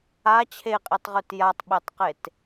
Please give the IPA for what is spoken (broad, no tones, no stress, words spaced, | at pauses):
a t͡ɕʰeqʼitˤʁʉt jatˤɓetˤqet